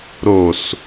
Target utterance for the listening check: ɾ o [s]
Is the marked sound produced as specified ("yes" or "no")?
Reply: yes